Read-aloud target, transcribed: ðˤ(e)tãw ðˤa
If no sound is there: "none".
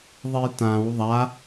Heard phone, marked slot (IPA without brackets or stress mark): e